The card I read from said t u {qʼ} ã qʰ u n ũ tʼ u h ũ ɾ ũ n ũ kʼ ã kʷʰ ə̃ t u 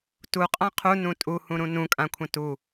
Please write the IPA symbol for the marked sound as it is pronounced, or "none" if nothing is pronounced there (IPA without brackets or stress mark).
qʼ